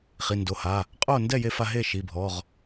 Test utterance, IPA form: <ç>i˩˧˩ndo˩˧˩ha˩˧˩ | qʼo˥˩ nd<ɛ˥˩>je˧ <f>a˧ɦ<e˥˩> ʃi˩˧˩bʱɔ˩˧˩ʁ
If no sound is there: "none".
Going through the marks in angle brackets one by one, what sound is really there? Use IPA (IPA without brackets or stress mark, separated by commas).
χ, ɛ˥˩, f, e˥˩